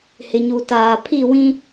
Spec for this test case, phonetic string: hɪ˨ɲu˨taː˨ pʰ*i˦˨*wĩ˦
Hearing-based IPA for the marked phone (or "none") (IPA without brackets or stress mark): i˦˨